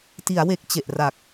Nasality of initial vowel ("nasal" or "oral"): oral